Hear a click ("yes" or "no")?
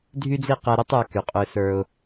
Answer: no